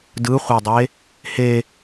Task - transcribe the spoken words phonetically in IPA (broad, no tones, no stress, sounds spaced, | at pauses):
d ɯ χʷ a dˤ e | h e